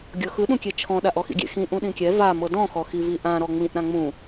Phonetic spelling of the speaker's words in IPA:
ɡʲ ɤ x ɯ ɗ ũ kʲ e t͡ʃʰ ɔ̃ ɗ a ʔ ɔ x ḭ ɡʲ ḛ x ĩ ʔ ũ ɗ ĩ kʲ ɛ v a m ɤ d ɔ̃ x ɔ x i v i ʔ ã ɾ ɔ ŋ͡m ĩ ʔ ɾ ã ŋ͡m ũ

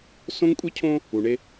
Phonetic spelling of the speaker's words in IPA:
s õ˦ ŋ kʷʼ i˦ cʰ õ˦ | u˨ ɳ e˦

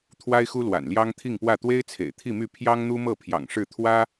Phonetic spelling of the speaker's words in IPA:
t̪ʰ w a˥ ɪ̯ x u˥ l w a̰˨˩ n l j ɑ˥ ŋ t̪ʰ i˥˧ ŋ p w ä˥˩ t̪ w e˥ ɪ̯ t͡sʰ ḛ˨˩ ɪ̯ t̪ʰ i˥˧ m y˥˩ pʰ j ɑ˥ ŋ n̪ u˥ m ɤ˥˩ pʰ j ɑ̰˨˩ ŋ ʂ ɻ̩˥˩ t̪ʰ w ä˥

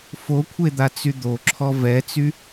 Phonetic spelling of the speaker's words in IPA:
f o kʷʰ e d̪ a t͡s y d̪ o ǁʰ ɔ v ɛ t͡s y

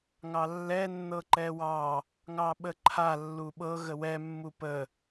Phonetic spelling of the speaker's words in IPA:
ŋ ɑ lː ɛ nː ɤ ǃ ɛ w ɑ | ŋ ɑ ɓ ə ǃʰ a lː u ɓ ɤ ɣ ə w ɛ mː u p ə

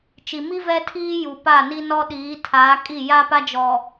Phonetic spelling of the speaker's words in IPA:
t͡ʃ i˨ m i˦ v ɛ˦ tʰ iː˦ j u˨ p a˦˨ n i˦ n ɔ˦ ɗ iː˨˦ tʰ aː˨˦ kʼ i˦˨ j a˦ p a˦ d͡ʒ ɔ˨

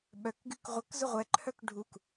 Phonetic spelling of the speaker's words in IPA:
ɓ œ k ɡ y k ʁʷ ə k z ʊ ʁʷ ɛ ǃʰ œ k ɖʱ u k

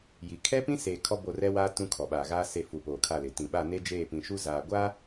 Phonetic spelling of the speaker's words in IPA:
j i˨ kʰ ɛ˦ p ĩ˦ s e˨ kʰ ɔ˦ b o˦˨ r ɛ˦ w aː˦ t ũ˦ kʰ ɔ˨ ɓ aː˨ ɣ aː˦ s e˨ f u˨ p oː˨ kʰ a˦˨ l ɪ˨ t ĩ˨ ɓ a˦˨ n e˦ d͡ʒ eː˦˨ p ĩ˨ ʃ u˦ z aː˨ ɡʷ a˦

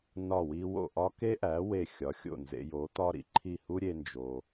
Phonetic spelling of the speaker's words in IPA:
n ɒ˥˩ w i˥ w o̰˥˩ ʔ ɒ˥ k e˥ ʔ æ˩˥ w e˥˩ xʲ ɒ˩˥ xʲ o̰˥˩ n z ḛ˧ j o˩˥ t̪ ɒ˥ ɾ ḭ˧ ǃʰ i˥˩ h u˥ ɾʲ e˧ n d͡ʒ o˩

